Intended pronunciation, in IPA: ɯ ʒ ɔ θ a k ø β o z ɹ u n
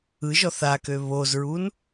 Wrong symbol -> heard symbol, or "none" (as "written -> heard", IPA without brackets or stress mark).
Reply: none